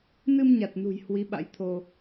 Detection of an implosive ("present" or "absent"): present